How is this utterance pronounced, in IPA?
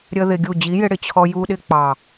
ɾʲə˦ðɪ˧ɡʲu˦˨ d͡ʑi˨˦jɪ˧ɽɪ˨ t͡ɕʰɔ˧ ju˧ɗɪ˧ k͡pɑ˨

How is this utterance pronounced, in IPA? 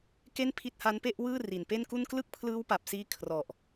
ke˥˩npʰi˦˥t̚ha˦˥npe˥˩ʔ wɯː˥˩ ri˨˩npe˥˩nku˥˩n klɯ˥˩k̚pʰlɯː˦˥wpa˨˩p̚siː˧ kʰrɔ˨˩ʔ

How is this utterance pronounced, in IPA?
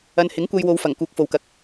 ɐ˨nhɪ˨˥ŋ kʷɐ˧jwo˨˧wfɐ˨˩ŋ kuː˨˥k̚fo˨wkɐ˨k̚

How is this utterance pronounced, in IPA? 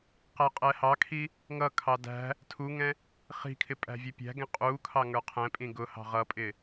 qæqʼɛhɑkʰi | ŋʌkʰɑ dæ̤ | tʰuŋɛ̃ | χi̤kʰɪ pʼæ̤vʲɛpʲæ̤ɡɛ̃ qʼukʰɑ ŋə˞qʰɛ̃pʼĩ ɡʊhɑ̤ ʁʌpʼɪ

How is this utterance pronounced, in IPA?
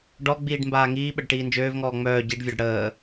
ɖɔɡ͡biːɖ mbaːŋiːɓəɖ ʈiːnd͡ʒøːvŋɔː ŋ͡mœː ɟiɖvʲɔɖ ɽəː

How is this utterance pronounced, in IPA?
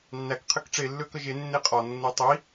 nːæk qʰɘkʈ͡ʂe lːøkəʒe nːeqʼɒ nːetˤi

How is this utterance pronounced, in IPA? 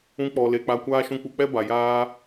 ũ˧k͡pɔ˨le˨ k͡pa˧kʷaː˦ ʃũ˧k͡pu˧k͡pɛ˦ba˨ jaː˦

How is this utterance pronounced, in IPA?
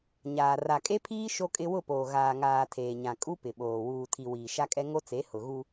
ɲaː˨ ra˨kʼe˦pʰiː˦ ʃo˦kʼɪ˦ wʊ˦˨poː˨ ɣaː˨ŋaː˨ tʰeː˨ɲã˨kʼu˦ pɪ˨ɓoː˨ wuː˨tʰi˨ wiː˨ʃa˦kʼɛ˦ ŋo˦t͡se˨˦ hʊ˨ɣu˦

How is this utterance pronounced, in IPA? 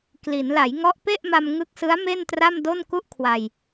kli˩˦n la˩˦jŋɔ˦˥ʔpe˥˩ʔma˧m ŋɯ˦˥k̚sɯ˦˥a̯ me˥˩ntra˥˩mdo˥˩n ku˥˩ʔkʰwa˧j

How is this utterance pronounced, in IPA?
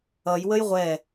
ʌj wəjʁʷɛ

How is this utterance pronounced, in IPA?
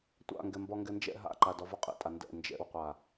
tʷa̰ŋɡɛmbɒ ŋɡɛnd͡ʒɛ̰ ɦa̰ǃa dɒvɒqʼḭtʼa ndɛ̰ nd͡ʒɛ̰wqʷa

